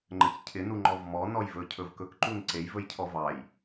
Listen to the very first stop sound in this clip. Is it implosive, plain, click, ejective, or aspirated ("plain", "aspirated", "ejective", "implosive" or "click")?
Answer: click